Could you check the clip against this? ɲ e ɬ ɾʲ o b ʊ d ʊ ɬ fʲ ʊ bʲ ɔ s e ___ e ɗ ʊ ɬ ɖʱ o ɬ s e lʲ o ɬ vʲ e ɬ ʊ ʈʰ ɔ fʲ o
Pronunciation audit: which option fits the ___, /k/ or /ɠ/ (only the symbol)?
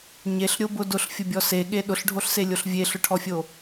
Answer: ɠ